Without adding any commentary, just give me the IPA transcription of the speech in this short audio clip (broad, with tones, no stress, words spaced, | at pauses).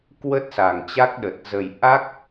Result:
kwə˦˥t̚sa˨˩ŋt͡ɕa˦˥k̚ɗə˨˩t̚ zə˨˩j ʔa˦˥k̚